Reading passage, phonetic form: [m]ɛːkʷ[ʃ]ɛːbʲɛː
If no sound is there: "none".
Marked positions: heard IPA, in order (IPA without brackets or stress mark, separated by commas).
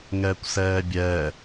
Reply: ŋ, s